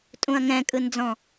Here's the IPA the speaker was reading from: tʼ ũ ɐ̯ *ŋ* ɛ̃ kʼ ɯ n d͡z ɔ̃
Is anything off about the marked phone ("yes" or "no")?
no